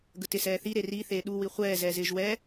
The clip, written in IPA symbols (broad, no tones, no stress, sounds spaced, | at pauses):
ɡ ə t ɪ s ɛː θ i ɾ e r i θ eː ɗ u w i χʷ ɛː z ɛː z ɪː ʒ w ɛː